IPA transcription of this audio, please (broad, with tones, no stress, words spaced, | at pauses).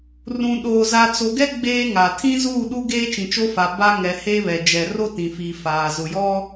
rũ˨ɗoː˨ za˨t͡so˨ɡɛ˦ ɡ͡beː˦ŋa˨ tʰĩ˦zuː˦˨ɗu˦ ɡeː˦t͡ʃĩ˨t͡ʃo˦fa˨ ba˦ ŋɛ˨ he˦βɛ˨ d͡ʒɛ˨ro˦tĩ˨fiː˨ faː˨zʊ˨ jɔ˦